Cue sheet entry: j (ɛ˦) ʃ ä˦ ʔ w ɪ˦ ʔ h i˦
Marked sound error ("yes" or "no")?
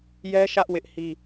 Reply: no